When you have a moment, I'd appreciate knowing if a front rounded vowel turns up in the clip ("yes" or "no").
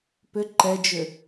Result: yes